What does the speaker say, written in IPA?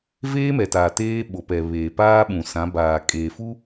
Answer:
veː˦mɛ˨taː˨ teː˦ ɓo˨pɛ˨ βeː˨paː˦ɓũ˨ sã˨˦baː˨ kʼeː˨fu˦

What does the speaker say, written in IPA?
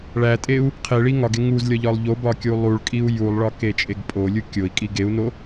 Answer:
ɭætʼeu̯ | qʰeɭi ŋɒɡe ŋuzlʲɒʎɒlˠ ʎobɒkʲu lˠuɭkʼiu̯ julˠɭɒket͡ʃʼeɡ pʼolʲu kʲoi̯kʼi ɡeu̯no

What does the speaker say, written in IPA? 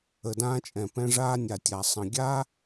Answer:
ə˨dãː˧t͡ʃʼɛ̃˨ pɛ̃˧ʐaː˧nʲa˨tʲa˨ sˤə̃˨ɡʲaː˦

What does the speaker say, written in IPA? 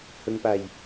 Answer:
hɵŋpaj

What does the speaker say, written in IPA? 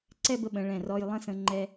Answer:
ǀɛ˥˧bə˧ɓə̃˩˧ ɭɛ̃˧˩rɔ˧j lˠə̃˥˧sə̃˧ŋ͡ǃɛ˧

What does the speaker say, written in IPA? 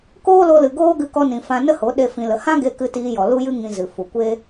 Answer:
koː˦lo˧lɨ˨ ɡoː˦ɡɨ˧kɔ˧nĩ˨ fã˧ nə˦ho˨˦ ɗe˦fĩ˧lə˧ hã˦ɡe˧ kɨ˧tiː˧jɔ˨ lu˦jɨ˦ ŋĩ˧zɨ˨fu˨ kʷe˦

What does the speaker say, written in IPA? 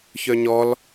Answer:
çœɲɔl

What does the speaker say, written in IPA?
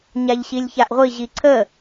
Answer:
ɲaʎɕilʲçaʔʁʷi ʑiǀʰə

